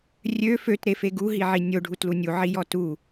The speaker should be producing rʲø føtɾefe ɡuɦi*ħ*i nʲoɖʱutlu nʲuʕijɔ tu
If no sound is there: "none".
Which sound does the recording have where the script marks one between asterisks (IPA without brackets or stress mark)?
ʕ